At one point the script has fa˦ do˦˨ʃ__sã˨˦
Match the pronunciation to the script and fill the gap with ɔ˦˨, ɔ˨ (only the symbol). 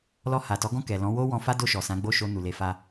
ɔ˨